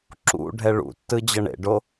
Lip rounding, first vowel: rounded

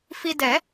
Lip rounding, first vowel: unrounded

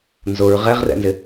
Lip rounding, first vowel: rounded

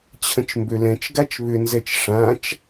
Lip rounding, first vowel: unrounded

